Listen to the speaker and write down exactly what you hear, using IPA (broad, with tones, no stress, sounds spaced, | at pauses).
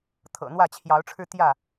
t̪ʰ ɤ̰˨˩ n̪ w ä˥˨ t͡ɕʰ j ɑ˨˦ ʊ̯ ʈ͡ʂʰ ɻ̩˧ t̪ j ä˥˨